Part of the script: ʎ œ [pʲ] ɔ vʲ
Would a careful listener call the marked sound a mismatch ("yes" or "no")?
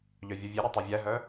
yes